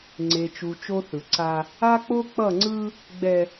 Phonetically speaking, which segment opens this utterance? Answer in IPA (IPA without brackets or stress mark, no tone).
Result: ŋ͡ǀ